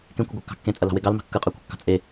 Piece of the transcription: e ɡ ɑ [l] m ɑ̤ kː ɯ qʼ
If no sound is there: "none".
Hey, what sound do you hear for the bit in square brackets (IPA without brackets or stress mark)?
l